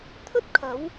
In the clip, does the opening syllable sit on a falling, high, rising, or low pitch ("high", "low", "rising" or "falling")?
high